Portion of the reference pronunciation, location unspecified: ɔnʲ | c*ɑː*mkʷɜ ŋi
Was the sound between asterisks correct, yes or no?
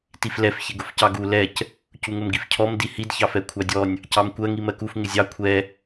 no